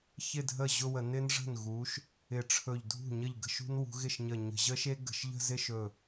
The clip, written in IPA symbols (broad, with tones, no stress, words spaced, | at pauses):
çɪ˥˧dʱə˥˩ ʑʊ˥˧wə˧˩˧ nɪ˦˥nʐə̤˥˩n ɣu˨˦ʃ | ɪ˧˩ʈ͡ʂʰɵ˧˩ʎdʱṳ˥˩ɲə˥˩ʎ ɡə̤˥˧ʃṳ˦˥nwṳ˨˦ ɣɪ˥˩ʃɲə˧˩ɲə̤˧˩˧ ʑə˦˥ʃe˦˥ ɡə̤˧˩˧ʃʎə̤˥˧zɪ˥˧ʃɵ˧˩